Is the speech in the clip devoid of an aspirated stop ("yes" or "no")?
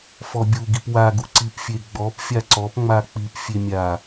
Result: yes